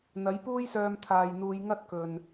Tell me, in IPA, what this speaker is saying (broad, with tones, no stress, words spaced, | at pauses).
n̪ɐ˨˥jpuː˥jsœː˧m t̪ʰaː˨jn̪uː˨˧j ŋɐ˥t̚kɵ˨n